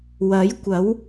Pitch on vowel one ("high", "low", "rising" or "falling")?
rising